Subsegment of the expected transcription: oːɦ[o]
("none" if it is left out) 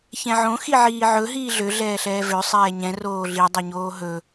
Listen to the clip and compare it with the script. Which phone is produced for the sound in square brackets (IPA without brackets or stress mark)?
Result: ɵ